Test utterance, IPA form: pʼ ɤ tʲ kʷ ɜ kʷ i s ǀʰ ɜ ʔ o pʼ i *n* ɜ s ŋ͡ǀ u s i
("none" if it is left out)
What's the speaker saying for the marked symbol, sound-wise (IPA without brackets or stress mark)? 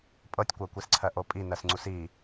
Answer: n